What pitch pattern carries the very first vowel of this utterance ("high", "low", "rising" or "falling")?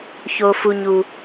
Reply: high